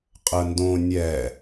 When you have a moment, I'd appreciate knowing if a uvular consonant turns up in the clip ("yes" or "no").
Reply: yes